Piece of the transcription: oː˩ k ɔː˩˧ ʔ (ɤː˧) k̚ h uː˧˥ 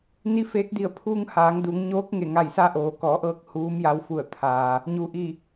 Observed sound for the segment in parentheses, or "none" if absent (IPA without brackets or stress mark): ɤː˧